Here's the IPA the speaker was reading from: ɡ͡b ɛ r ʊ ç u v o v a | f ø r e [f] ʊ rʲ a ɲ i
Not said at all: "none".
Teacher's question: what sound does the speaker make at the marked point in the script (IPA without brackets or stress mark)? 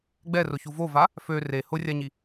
h